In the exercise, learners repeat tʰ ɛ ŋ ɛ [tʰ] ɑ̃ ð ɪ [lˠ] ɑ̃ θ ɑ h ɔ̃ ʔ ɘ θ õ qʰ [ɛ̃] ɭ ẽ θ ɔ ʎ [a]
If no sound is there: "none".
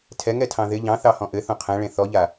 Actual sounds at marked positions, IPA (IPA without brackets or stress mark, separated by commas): tʰ, ʎ, ɛ̃, a